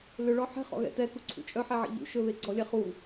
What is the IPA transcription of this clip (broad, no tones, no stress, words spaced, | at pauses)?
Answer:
lʏɭɔ ħɛ̤χɔ̰ɣɛ̰ tɛkuǀʰṵ t͡ʃʼœħɛʕḛ ʎṵ ʃɵβeɡ͡ǀɔlʲɛ χu